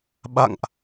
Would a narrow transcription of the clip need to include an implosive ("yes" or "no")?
yes